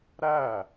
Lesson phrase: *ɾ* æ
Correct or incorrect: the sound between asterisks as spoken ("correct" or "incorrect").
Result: correct